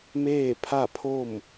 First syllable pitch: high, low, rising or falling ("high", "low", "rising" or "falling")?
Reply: falling